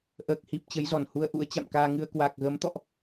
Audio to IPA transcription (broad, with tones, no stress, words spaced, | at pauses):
ʔəː˨˩k̚hi˨˩p̚ t͡ɕə˨˦jzɔ˧˩nhu˧ə̯ʔṵ˧˥ə̯ t͡ɕa̰˧˨mkaː˧ŋɨ˧ə̯ kwa˨˩k̚ɣə˨˦mt̪ɔ̰˧˨ʔ